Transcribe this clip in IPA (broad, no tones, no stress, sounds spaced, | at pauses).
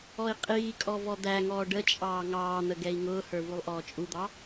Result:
ɔ i̯ qʼ iː kʼ ɔ v ɔ d̪ æ ŋ ɔː ɖ ə t͡ʃʼ ɑː ŋ ɑː n̪ ə ɡ ɛ i̯ ŋ ʊː h ə˞ v u lˠ ʔ ɔː t͡ʃʼ u d̪ ɑ